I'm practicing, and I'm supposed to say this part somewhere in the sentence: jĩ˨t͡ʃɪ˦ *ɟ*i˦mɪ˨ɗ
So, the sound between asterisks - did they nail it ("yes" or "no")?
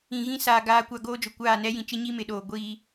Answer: no